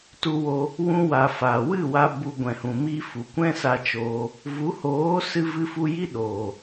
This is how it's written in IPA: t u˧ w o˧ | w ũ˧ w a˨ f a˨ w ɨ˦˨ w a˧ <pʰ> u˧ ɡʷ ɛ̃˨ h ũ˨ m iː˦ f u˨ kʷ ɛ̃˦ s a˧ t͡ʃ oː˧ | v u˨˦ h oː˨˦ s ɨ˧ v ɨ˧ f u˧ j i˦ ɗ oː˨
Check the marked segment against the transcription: incorrect: b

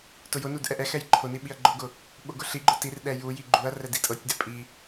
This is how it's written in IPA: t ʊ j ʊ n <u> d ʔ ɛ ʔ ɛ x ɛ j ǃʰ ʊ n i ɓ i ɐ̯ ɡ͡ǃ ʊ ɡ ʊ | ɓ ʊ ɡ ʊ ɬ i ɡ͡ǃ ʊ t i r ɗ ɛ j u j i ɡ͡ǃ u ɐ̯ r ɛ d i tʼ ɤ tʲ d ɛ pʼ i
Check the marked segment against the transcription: correct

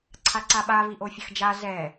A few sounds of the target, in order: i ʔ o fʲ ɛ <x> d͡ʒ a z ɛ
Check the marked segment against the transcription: correct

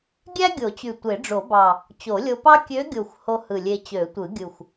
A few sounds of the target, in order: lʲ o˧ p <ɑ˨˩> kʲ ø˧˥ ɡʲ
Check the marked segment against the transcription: incorrect: ɑ˥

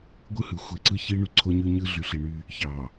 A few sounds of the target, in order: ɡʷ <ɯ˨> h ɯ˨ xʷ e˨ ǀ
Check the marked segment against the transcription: incorrect: ɯ˦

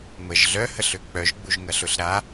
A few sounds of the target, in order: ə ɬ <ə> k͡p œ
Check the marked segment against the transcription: incorrect: ø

